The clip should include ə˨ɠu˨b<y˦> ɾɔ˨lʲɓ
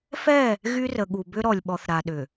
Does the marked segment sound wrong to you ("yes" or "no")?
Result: yes